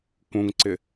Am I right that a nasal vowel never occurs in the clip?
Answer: no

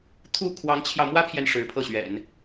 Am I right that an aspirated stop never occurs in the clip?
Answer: no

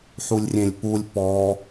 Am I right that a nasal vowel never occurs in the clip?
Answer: no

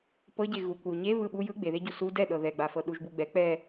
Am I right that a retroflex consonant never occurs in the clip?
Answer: yes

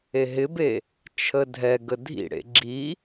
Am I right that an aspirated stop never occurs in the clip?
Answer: no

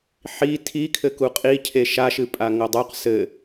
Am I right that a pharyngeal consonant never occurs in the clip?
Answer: no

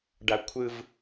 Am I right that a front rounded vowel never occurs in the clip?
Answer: yes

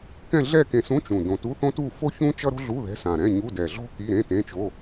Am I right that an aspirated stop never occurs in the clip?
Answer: yes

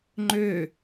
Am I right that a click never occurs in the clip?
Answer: no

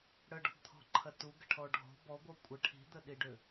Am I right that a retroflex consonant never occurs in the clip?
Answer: no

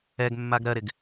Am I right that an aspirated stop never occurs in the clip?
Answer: yes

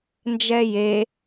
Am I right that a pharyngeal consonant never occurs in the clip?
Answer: yes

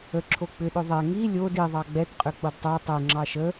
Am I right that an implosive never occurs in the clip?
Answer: no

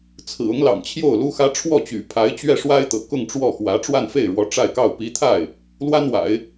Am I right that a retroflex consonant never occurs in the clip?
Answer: no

